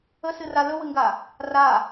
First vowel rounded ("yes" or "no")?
no